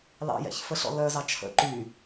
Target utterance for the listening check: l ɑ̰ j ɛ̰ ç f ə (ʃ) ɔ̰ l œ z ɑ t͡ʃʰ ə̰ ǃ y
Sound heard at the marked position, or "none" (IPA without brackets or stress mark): ɬ